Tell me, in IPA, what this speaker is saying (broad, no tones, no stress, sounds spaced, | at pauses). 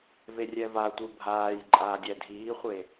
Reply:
v e rʲ ɛ v a tʷ ɯ bʱ aː j ǃʼ aː dʲ ɛ dʱ iː χʷ e